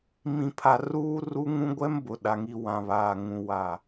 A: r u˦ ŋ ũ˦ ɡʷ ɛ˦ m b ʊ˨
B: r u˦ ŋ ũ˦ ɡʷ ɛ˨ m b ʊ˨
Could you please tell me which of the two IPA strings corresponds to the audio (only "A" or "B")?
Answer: A